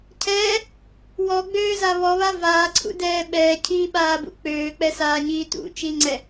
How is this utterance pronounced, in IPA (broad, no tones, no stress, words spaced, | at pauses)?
cʰɛː | wɔɡ͡bøːza βɔβa vaːǀʰṵdɛː ɓɛːcʰiːɓaːbṵ k͡pøːk͡pɛsaːɲiː tṵt͡ʃiŋ͡ǀɛ